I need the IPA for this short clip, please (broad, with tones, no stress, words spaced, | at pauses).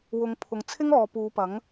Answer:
wʊ˨˧ŋpʰʊ˨ŋt͡sʰɪ˥ŋ ɔː˨puː˨˧pɐ˨˥ŋ